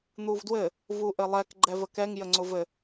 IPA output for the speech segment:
n̪ u v d w ɘ | v u ʔ ɘ lˠ ɛ k ɡ͡ǃ ɛ v ə k ɛ ŋ j ə ŋ͡ǀ ʊ v ɘ

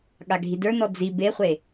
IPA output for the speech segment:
ɠ a ɡʱ i d ə˞ n ɔ d͡z i b e χʷ e

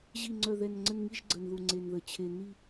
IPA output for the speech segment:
ʑ i˦˨ ŋ͡ǀ œ˦˨ ð ɛ˦˨ n ŋ͡ǀ ə˦˨ n ŋ i˦˨ ʒ ɡ͡ǀ ə˨˩ n ð u˨˩ ŋ͡ǀ e˨˩ n ð ə˨˩ t͡ɕʰ e˨˩ n i˦˨

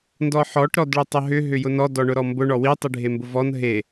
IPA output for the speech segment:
n d ɔ ħ ɔ ʈ ɾ ɔ d ɭ ʏ tˤ ʊ ɦ ʏ ɦ ʏ j ʊ n ɔ d ɔ ɳ ʊ ɾ ɔ m b ʊ ɳ ɔ w i tˤ i ɖʱ e m b ʊ v ɔ n ɦ e

